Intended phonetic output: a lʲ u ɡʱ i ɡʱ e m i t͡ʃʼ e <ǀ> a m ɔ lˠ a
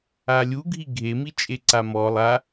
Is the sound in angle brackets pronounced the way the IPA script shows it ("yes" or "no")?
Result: yes